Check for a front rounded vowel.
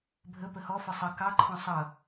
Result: absent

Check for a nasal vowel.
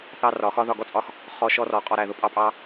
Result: absent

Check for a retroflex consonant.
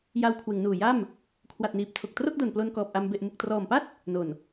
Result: absent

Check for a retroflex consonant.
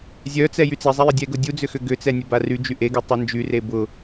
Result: absent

